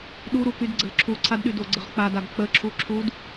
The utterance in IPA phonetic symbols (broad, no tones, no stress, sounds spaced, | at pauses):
ɗ u ɾ u k y d ɡ͡ǀ ə l ǁʰ u ǀʰ a d ɗ y d o ɡ͡ǀ ə ʁ k͡p a d a ɡ k͡p ə ǁʰ u ǁʰ u d